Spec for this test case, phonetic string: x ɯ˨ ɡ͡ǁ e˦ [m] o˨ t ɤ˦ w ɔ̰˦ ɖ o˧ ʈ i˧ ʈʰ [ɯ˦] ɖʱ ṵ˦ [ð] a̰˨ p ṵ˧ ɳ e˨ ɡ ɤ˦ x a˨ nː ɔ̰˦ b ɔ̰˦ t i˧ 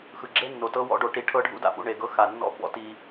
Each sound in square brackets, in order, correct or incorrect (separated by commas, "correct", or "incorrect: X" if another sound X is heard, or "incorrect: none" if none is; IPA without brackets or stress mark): incorrect: nː, incorrect: ɤ˦, incorrect: d